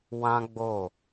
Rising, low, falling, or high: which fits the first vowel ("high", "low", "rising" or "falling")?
high